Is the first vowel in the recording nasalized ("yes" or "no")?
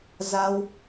no